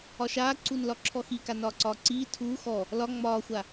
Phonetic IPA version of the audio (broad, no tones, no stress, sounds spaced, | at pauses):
ɒ ʃ aː ǀ u n l ɒ ǁʰ ɔ x i k a n ɒː ǀ ɒː ǀ iː tʰ uː x ɔ | l ɒ ŋ͡m ɒː xʷ a